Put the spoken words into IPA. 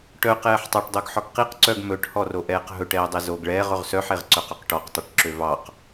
ʈ œ q ɛː ħ tˤ ɑ ʈ dˤ o ɡ ħ ɔ ɡ q i q ǀ œ ɡ m ɵ ʈ h ɔ r o ʔ ɛː q ɦ ɵ ʈ ɛː dˤ e z o ɡ ɭ ɛː ʁ ɵ ʁ s œ ħ e ʁ ǀ œ q ɵ q ʈ ɔ q tˤ ɵ ʈ ǁ ø v ɑ q

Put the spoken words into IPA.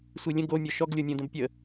sʷ i lʲ ə̃ ɡ o mʲ ɔ ʃ ɔ ɡ lʲ o mʲ õ d ə̃ b pʲ ə

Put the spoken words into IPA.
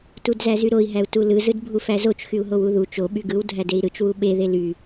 t u d z æ z y ɾ o i̯ ɦ æ u̯ t u l ɯ z ɯ d bʱ u f æ z o t͡ʃ x y u̯ ɦ o w u ð u t͡ʃ o ɓ y ɡ ɯ w dʱ æ d e i̯ ɾ ɯ t͡ʃ w u ɓ e ð e l y

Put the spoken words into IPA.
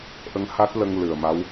ʔ ə˧ ŋ h a˦˥ t̚ l ə˧ ŋ l ɨ˨˩ ə̯ m a˧˥ w

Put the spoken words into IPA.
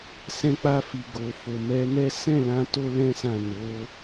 s ɛ̃˧ k͡p a˧ f i˨ ɡ o˨ f o˨ m ɛ˨˦ n ɛ˦ s ɛ̃˦˨ l ã˧ t o˦ l ɛ̃˦ s ã˦˨ n o˨˦

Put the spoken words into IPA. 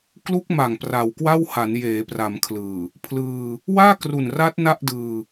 k l u˦˥ k̚ m a˨˩ ŋ p r a˨˩ w k w a˥˩ w h a˩˦ n j eː˩˦ p r a˩˦ m kʰ l ɯː˨˩ | pʰ l ɯː˧ | w aː˥˩ k r u˨˩ n r a˦˥ t̚ n a˥˩ ʔ d ɯː˧

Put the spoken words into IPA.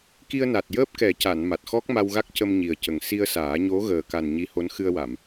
k i˧ ə̯ n a˨˩ t̚ j əː˦˥ p̚ k ɛ˨˩˦ c a˨˩˨ n m a˨˩ t̚ x ɔ˦˥ k̚ m a˧ w ɣ a˦˥ k̚ c ə˧ m ɲ i˨˩ ə̯ c ə˨˩ ŋ s i˧ ə̯ s aː˨˩˦ ɲ o˧˥ ɣ əː˨˩ k a˨˩ n ɲ i˧˥ h o˧˥ n x ɨ˧ ə̯ w a˨˩˨ m

